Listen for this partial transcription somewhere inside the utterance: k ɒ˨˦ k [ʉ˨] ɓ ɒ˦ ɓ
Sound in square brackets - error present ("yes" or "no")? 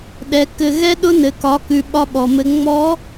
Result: no